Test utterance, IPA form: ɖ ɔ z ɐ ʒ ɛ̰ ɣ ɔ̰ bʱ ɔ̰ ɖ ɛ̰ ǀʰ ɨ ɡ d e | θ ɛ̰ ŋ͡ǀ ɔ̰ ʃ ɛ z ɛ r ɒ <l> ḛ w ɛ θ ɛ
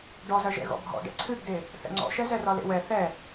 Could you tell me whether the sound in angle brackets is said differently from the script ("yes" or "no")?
no